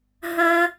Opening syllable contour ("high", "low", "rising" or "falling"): high